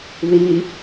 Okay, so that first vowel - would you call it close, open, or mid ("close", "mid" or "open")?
close